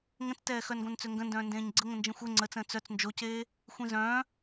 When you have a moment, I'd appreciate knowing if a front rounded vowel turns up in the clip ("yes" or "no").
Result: yes